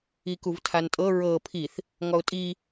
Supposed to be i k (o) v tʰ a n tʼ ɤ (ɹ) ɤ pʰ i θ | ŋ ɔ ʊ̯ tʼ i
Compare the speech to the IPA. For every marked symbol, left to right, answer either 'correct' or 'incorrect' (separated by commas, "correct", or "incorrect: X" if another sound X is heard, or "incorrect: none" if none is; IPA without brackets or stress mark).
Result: incorrect: u, correct